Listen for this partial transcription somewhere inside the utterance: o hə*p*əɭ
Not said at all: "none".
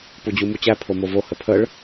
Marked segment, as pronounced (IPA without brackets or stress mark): pʰ